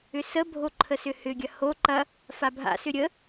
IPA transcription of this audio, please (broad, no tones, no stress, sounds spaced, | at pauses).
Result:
ʏ s ə bʱ o ǃʰ ə s ʏ h ʏ ɡʲ ɐ h o ǃ ɐ | f a bʱ a̰ s ʏ ɾʲ ə